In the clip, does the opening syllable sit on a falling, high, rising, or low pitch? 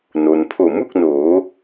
low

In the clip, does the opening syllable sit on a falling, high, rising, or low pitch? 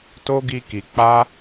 high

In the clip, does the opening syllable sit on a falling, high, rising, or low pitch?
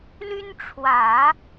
high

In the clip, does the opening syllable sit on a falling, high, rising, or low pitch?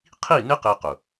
falling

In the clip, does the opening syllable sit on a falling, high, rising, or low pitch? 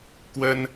high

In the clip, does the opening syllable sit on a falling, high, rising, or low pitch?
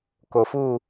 low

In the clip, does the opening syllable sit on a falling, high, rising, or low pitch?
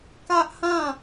high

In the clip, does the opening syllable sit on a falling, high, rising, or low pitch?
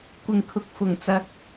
low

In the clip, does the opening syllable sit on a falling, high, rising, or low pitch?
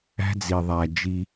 high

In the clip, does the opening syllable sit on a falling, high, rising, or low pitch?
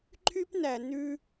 high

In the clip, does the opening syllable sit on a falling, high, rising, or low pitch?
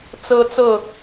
high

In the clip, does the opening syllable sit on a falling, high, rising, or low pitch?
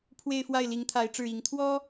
falling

